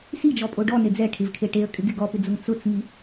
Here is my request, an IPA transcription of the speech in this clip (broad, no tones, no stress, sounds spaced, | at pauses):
s i d͡ʒ ɔ pʼ o ɖ ɔ n e d͡z ɛ ʈʰ ɪ v kʰ e ʈ e ə̯ kʼ ɪ ɡ ɪ ɡ ɔ p ɪ d͡z ʊ ŋ t͡s ʊ t͡s ŋ i